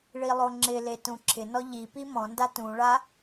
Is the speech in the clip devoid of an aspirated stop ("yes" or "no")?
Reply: no